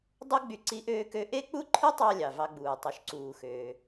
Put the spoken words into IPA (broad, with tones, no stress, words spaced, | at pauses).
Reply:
dˤu˥ɡ͡by˧ ǀi˥ʔøː˥kø˥ ʔe˥k͡pu˥ǃʰɯ˥tˤɑ˧ lʲɑ˩vɑ˧ɡ͡buː˩ tˤø˩ʃǀuː˩xøː˩